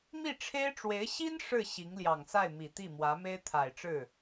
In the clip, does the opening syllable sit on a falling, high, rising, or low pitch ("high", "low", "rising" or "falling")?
falling